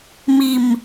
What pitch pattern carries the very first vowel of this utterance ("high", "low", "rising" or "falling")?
low